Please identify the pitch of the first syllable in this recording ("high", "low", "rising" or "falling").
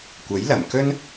rising